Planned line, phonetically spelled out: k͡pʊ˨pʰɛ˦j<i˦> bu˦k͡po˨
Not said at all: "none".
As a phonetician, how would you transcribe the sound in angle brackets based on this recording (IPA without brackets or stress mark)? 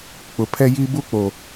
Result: i˦